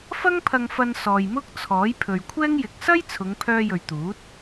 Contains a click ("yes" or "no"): no